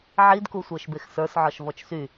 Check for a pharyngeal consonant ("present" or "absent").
present